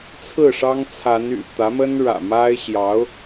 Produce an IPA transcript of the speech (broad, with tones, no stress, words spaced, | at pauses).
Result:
t͡sʰɹ̩˥˩ ʂɑ˥ŋ t͡sʰa˧˥n y̰˨˩ t̪ä˧˥mə˥nɻä̰˨˩ ma˥ɪ̯ ɕjɑ˧˥ʊ̯